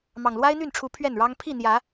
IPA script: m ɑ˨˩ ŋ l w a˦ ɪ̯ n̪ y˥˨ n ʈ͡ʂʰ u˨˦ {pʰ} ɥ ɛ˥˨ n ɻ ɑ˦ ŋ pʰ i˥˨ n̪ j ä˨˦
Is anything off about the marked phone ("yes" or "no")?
no